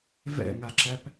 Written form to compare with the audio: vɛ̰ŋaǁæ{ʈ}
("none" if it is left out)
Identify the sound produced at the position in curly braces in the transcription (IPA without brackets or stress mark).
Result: p